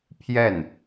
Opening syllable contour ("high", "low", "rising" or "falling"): falling